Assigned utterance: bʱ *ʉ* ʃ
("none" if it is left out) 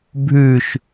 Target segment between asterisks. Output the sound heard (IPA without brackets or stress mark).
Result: ʉ